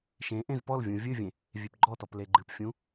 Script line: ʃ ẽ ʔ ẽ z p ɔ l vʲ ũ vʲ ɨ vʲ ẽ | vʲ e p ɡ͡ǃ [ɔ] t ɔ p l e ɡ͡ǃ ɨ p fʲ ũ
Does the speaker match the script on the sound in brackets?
yes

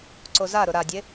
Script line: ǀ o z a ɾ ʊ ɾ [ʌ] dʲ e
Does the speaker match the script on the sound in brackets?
no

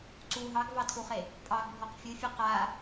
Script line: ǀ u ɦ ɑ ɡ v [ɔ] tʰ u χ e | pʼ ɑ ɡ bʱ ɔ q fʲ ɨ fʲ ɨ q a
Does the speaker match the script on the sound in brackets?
no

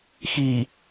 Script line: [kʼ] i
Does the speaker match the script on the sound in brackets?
no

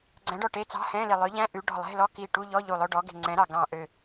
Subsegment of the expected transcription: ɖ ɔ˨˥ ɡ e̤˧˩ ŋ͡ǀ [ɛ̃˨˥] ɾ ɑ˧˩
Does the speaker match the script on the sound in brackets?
yes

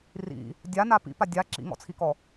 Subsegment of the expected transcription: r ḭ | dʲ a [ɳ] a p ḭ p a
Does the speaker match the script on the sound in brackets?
no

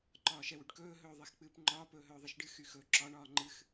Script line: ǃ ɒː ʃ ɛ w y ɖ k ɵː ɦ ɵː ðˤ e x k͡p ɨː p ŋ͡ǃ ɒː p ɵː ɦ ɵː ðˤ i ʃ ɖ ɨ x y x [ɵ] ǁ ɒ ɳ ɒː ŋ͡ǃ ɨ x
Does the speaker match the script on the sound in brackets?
yes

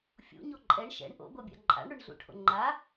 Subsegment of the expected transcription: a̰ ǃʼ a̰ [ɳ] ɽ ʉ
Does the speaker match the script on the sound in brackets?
yes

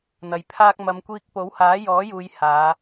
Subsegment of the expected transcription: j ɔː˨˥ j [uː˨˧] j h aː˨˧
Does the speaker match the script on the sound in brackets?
yes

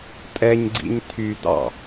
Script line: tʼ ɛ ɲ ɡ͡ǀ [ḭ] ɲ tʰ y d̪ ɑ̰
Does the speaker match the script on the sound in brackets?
yes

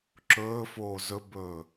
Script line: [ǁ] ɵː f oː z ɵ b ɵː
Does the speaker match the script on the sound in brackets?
yes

